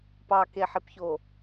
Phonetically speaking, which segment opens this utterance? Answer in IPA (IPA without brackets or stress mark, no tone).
p